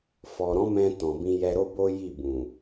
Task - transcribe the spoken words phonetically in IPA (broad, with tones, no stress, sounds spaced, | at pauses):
f ɔ˨ ɾ ɔ̃˨˦ m ɛ̃˧ t ɔ̃˨ b ĩ˧ j ɛ˧ ɾ o˦ b o˦ j i˦˨ b ũ˨